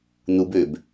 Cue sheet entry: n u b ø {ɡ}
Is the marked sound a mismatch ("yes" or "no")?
yes